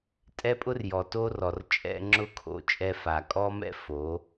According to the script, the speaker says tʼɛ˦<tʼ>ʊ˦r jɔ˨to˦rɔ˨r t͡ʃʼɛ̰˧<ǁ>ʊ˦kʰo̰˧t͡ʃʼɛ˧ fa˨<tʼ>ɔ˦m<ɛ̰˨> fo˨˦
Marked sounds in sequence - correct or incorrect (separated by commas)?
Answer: incorrect, incorrect, incorrect, incorrect